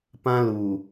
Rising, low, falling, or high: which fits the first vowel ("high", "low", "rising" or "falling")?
high